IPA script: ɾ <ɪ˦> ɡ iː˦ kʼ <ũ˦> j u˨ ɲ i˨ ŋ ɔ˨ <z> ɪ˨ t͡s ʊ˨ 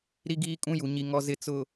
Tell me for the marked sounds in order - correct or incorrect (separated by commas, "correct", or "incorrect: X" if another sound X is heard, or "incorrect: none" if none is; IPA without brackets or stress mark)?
incorrect: i˦, correct, correct